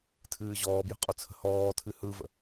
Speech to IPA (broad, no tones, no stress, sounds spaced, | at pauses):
tʰ ɨː ʑ ɔː b j ə̤ qʼ ʊ t͡sʰ ə̤ h ɔː tʰ ɨ h ɯ v ə̰